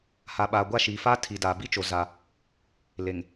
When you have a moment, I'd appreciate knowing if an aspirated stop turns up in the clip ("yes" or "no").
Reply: yes